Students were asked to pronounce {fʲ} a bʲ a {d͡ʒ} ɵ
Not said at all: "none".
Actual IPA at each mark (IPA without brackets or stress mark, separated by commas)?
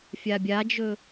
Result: fʲ, d͡ʒ